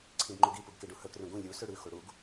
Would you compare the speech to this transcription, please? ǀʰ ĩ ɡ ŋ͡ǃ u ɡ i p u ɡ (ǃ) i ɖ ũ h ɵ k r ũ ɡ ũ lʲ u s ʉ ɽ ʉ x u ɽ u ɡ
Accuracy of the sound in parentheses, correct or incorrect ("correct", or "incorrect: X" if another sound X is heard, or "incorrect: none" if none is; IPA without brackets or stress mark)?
incorrect: k